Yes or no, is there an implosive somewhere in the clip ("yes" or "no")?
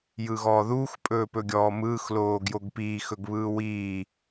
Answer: no